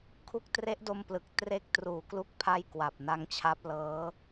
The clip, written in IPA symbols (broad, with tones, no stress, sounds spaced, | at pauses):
kʰ u˦˥ k̚ t r e˦˥ ʔ d o˧ m p l ɯ˨˩ k̚ t r e˦˥ k̚ t r uː˨˩ k l u˥˩ k̚ pʰ a˥˩ j k w a˨˩ p̚ n a˦˥ ŋ t͡ɕʰ a˦˥ p̚ l ɤː˦˥